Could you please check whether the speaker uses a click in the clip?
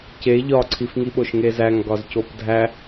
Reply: yes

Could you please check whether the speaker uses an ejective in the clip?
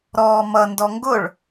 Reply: no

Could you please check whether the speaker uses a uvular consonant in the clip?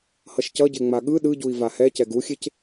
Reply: no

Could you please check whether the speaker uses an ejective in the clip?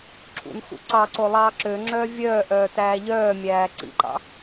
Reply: no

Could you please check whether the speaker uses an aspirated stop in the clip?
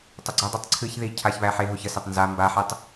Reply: yes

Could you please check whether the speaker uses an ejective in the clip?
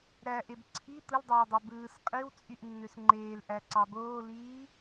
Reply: yes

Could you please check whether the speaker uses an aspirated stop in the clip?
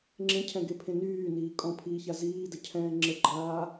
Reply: yes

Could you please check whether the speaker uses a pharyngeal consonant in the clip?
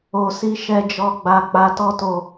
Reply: no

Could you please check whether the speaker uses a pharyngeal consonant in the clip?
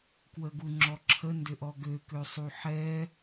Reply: yes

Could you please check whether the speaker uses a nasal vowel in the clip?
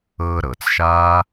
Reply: no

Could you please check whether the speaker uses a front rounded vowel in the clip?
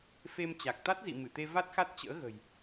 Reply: no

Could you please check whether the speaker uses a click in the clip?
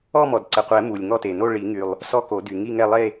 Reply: yes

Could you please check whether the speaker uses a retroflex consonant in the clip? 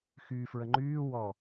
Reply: no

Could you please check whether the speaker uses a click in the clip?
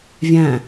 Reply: no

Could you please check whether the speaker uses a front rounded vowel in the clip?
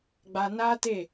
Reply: no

